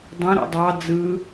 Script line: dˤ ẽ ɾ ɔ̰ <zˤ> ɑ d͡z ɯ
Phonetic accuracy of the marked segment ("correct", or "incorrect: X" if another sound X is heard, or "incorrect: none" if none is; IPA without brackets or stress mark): incorrect: dˤ